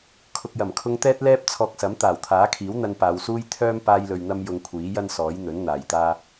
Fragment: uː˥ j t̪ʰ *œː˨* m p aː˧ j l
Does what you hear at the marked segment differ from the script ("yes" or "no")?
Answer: yes